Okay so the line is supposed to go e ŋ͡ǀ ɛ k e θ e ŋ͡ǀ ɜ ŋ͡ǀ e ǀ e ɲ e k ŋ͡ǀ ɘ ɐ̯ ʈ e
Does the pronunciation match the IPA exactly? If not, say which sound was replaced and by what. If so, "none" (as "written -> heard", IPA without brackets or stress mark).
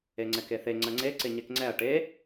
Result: ɘ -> ɛ